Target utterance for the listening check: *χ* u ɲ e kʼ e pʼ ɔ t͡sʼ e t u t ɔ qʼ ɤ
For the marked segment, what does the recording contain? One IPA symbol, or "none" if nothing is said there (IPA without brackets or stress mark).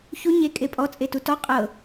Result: ç